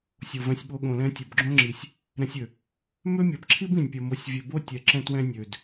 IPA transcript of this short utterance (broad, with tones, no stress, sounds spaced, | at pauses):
sʲ o˨ v ɛ̃˧ sʲ ɓ o˧ ɠ õ˨ l ɛ̃˧ tʲ o˨ b ɡ͡ǁ õ˦ ŋ͡ǁ i˨ sʲ | ɾ ɛ̃˧ sʲ ø˨ | m ø˦ mʲ ɐ˨˦ b ǁʰ i˦ b ĩ˨ nʲ pʲ ɐ˧ m o˧ sʲ vʲ ø˧ b o˦ tʲ ɛ˨ ǁ ɛ̃˧ t w ɛ̃˧ nʲ ø˨ d